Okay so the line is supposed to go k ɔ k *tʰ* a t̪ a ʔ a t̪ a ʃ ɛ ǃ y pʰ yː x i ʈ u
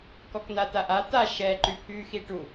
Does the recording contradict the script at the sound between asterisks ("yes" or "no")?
yes